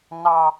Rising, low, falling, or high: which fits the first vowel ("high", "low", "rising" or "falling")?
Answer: high